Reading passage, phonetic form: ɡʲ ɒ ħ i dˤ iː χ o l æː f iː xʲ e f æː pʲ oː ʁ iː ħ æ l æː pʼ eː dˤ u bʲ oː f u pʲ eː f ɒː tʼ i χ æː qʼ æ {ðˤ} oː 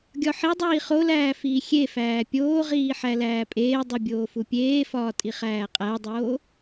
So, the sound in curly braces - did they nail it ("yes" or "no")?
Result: no